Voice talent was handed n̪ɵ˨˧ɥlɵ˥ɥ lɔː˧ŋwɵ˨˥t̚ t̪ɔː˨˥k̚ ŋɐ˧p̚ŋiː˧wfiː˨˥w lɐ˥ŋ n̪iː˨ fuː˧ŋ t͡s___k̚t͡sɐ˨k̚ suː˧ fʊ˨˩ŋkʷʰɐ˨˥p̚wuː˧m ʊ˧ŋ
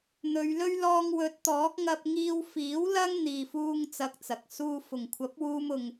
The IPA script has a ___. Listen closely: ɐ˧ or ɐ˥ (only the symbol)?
ɐ˧